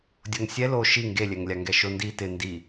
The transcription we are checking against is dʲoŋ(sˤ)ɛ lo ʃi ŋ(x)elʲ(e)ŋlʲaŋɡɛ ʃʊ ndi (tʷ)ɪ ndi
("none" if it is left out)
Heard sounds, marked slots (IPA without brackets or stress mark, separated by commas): sʲ, ɡ, ɛ, t